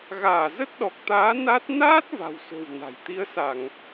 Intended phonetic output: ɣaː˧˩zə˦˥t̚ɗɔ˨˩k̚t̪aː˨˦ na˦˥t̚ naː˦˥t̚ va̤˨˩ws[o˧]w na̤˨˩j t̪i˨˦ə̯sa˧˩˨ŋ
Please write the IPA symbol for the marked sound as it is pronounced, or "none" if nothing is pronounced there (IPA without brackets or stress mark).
o̤˨˩